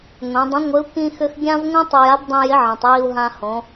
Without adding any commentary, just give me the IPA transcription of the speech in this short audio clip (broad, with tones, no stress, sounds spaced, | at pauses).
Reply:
ŋʷ ĩ˩˧ dˤ ə̃˧˥ ŋʷ ɪ˧˥ u̯ k ĩ˥ x ʏ˥ x ɡʲ ã˥ v ŋʷ ĩ˥ tˤ ʏ˧ j a˧˥ b dˤ ĩ˧ j ɪ˧˥ ʕ ĩ˩ tˤ j i˧ u̯ ɦ ã˧ h õ˩˧